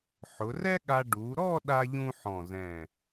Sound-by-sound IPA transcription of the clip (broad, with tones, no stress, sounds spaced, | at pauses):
ħ ʊ˩˧ r ɛ˥ ɠ a˧ ɖ u˩˧ ɾ ɔ˥˧ ɗ a˥ ʎ ũ˥ ħ ɔ̃˧˩ z ɛ̃˧˩